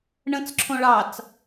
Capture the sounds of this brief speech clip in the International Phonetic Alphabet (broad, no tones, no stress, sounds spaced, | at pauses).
ɳ ə̃ t͡s ǁʰ õ ɭ ɑ t͡s